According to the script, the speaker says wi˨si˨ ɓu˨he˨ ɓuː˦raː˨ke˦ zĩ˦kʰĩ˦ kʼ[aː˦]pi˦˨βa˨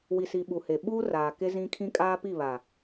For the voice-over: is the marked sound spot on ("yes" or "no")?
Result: yes